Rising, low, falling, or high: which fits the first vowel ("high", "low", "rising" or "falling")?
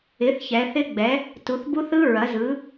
rising